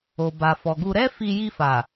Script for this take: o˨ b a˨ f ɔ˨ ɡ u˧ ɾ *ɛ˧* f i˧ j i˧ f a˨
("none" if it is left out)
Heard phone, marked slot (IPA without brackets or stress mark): ɛ˦